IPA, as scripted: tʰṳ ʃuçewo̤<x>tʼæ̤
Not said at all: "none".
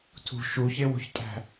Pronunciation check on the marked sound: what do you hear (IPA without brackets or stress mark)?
ç